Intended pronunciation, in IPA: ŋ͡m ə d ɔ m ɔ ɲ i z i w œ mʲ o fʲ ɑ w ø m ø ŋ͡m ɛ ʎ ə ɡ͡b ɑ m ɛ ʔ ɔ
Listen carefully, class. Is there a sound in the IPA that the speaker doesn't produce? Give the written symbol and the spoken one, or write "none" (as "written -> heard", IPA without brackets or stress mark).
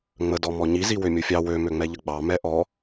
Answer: œ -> ø